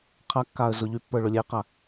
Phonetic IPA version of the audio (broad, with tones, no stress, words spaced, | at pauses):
qʰa˧kːa˨ə̯ zʊ˨ʎy˧pːə˞˨ ɭʊ˨lʲɛ˧ɪ̯qa˨